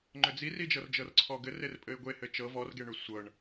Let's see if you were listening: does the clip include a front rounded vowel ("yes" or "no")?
yes